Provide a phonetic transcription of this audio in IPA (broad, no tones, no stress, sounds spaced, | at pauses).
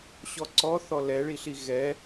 ɕ ɔ ǀ ɔ θ ɔ l ɛ ɭ i ɬ i ɣ ɛ